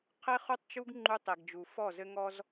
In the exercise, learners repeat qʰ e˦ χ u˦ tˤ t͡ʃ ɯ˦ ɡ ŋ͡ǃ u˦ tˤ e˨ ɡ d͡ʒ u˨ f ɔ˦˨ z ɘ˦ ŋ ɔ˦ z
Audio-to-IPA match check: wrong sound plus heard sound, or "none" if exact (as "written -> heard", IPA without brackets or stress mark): ɯ˦ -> u˦